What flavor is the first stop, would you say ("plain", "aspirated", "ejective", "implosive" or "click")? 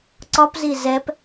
click